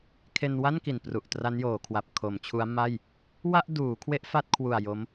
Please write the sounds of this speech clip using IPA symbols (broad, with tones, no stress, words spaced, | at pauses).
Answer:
kʰe˧nwa˥˩n ki˨˩npru˨˩ʔ tra˦˥njoː˩˦kʰwa˨˩p̚ kʰo˩˦mt͡ɕʰu˦˥a̯ma˥˩j | wa˥˩ʔduː˩˦kʰwe˦˥ʔ fa˥˩t̚kʰwu˨˩a̯ jo˦˥m